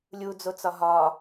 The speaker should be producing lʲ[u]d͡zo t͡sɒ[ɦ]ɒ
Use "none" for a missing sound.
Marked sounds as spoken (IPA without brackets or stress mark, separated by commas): u, ɦ